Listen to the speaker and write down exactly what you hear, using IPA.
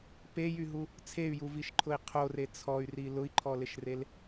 p e j y ɦ u | t͡sʰ e y̯ j u v i ʃ ǃʰ ʊ i̯ qʰ o r e t͡sʰ ɔ y̯ r i l ʊ i̯ ǃʰ ɔ l ɪ ʃ r e l

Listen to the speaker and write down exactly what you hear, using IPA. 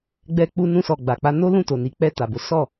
ɡ͡b ɛ˧ k͡p u˧ n ũ˧ s ɔ˨ ɡ͡b a˨ k͡p a˧ n o˦ l ũ˦˨ t o˨ n i˨ k͡p ɛ˧ t a˨ b o˨˦ s ɔ˦˨

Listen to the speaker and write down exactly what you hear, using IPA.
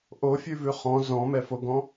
ʔ o fʲ ʉ v ʉ χ ɔ̃ z ɔ̃ m ɛ f o ɡ ɔ̃

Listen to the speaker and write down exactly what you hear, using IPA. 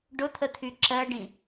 ɖ ʊ t̪ʰ ə t̪ʰ y ǁ ɜ ɖ ĩ

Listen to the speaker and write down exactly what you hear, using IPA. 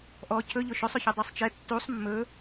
ʔ ɔ cʰ ɵ ʎ ʊ ʃ ø sˤ ʊ ç e dˤ e sˤ t͡ʃ ɛ tː u sˤ mː ɵ

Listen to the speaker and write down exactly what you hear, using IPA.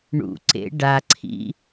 ɳ ṵ ǀ ḛ ɖ a ǀʰ ḭ

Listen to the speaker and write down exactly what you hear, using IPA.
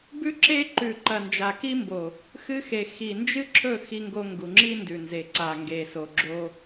b ʉ˦ ǁ e˦ ǃ ʉ˨ ǃ ɐ˨ n d͡ʒ a˨ k i˦ m b o˨ | x ɨ˦ x e˨ x i˨ n d͡ʒ ɨ˦ ǁʰ ɵ˦˨ x i˦ ŋ ɡ o˦ ŋ ɡ u˨ ŋ͡ǁ i˦ n d ʉ˨ n z e˨ ǀ a˨ ŋ ɡ e˨ s o˨ ɡ͡ǁ o˦

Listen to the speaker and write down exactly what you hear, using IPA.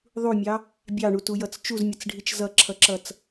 ðˤ u mʲ ɑ | bʲ ɑ ɳ u t u j ʌ t͡s t͡ʃ u z mʲ ʌ t͡s ɖʱ i t͡ʃ z ʌ ǁʰ ʌ ǁ ʌ t͡s

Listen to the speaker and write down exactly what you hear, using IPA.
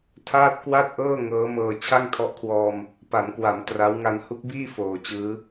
tʰ aː˥˩ t̚ k w a˥˩ t̚ ʔ ɤː˥˩ ŋ ɤː˦˥ m ɤː˧ t͡ɕʰ a˥˩ ŋ tʰ ɔ˦˥ ʔ kʰ w ɔː˧ m | p a˩˦ n k w a˩˦ m t r a˦˥ w ŋ a˧ n h u˦˥ k̚ b iː˥˩ f oː˨˩ t͡ɕ ɯː˦˥

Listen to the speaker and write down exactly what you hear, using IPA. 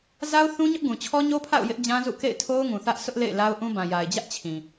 z a˦ ʊ̯ θ ũ˦ ɲ ʊ˦ ʔ ɡ ũ˨ t͡ɕʰ ɔ˦ ɲ o˦ pʰ a̰˦˨ ʊ̯ j ɪ˦ ʔ d͡ʑ ã˦ z ṵ˦˨ k ḛ˦˨ ɪ̯ tʰ o˦ ʊ̯ ŋ ũ˨ θ ä˦ ʔ sʰ ʊ˦ ʔ l ḛ˦˨ ɪ̯ l a˦ ʊ̯ ʔ ũ˦ b ã˨ j a˨ ɪ̯ d͡ʑ ä˦ ʔ t͡ɕʰ ĩ˨

